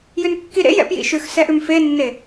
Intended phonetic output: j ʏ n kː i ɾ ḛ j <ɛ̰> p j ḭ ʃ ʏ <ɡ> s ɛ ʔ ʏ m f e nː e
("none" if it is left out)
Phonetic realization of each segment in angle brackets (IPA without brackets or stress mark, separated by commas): ɛ̰, x